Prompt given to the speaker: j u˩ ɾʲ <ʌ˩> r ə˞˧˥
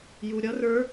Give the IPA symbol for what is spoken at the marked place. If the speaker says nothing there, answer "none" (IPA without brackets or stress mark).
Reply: ʌ˧˥